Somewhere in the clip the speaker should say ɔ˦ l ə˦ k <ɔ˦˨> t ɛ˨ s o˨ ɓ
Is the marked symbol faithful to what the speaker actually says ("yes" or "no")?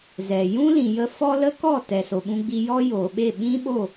yes